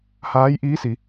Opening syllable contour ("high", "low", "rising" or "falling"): rising